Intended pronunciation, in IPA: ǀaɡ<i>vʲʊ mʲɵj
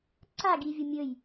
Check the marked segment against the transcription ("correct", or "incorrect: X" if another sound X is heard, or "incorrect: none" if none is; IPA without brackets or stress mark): correct